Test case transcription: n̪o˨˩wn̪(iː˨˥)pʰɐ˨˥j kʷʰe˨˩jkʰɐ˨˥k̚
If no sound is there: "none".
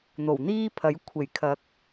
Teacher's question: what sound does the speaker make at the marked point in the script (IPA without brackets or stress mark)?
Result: iː˥